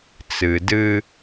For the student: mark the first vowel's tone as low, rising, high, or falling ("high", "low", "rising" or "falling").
low